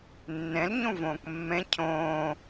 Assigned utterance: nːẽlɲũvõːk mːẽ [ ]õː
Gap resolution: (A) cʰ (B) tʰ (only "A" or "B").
A